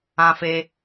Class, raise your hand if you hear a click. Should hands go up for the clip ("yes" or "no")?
no